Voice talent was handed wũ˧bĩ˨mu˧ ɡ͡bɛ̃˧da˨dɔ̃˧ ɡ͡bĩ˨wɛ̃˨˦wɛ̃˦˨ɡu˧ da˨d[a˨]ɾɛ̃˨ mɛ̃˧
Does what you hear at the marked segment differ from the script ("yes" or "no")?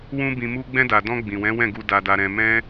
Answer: no